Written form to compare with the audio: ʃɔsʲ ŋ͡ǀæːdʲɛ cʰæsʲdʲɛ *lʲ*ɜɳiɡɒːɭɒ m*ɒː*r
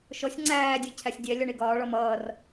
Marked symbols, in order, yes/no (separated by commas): yes, no